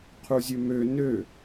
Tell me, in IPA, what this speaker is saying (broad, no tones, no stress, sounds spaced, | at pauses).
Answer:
qʰ u zʲ ø m ø n ø